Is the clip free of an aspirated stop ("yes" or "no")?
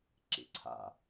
no